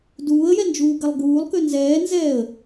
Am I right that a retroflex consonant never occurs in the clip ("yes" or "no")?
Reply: yes